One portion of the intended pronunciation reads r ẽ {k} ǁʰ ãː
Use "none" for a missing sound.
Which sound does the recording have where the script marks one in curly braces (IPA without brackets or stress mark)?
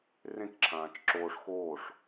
k